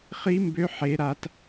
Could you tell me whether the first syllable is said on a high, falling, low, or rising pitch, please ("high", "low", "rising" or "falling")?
high